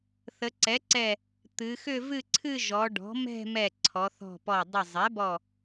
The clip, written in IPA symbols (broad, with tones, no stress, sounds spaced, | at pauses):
θ ə˩˧ ǀ ɛ˩˥ ǀ ɛ˧˩ | t̪ ɨ˩˧ x ʏ˥˧ v ɨ˥˧ ǀʰ ɨ˥˧ ʒ ɔ˩˧ ɖ ɔ̤˩˥ m ɛ̤˥˧ m ɛ˧˩ ǀʰ ɔ˩˧ θ ɔ̤˧˩ p ɔ˧˩ dˤ ə˧˩ zˤ ɛ˩˥ b ɔ˧˩